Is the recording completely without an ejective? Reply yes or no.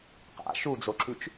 yes